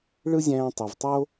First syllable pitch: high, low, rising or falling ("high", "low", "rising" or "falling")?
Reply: high